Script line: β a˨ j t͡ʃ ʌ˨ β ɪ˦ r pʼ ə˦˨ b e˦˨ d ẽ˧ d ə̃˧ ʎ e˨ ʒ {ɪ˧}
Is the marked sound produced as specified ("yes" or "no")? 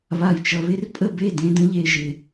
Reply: no